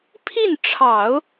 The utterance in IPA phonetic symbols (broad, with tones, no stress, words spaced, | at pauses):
pʰi˥˩nʈ͡ʂʰɑ˨˩˦ʊ̯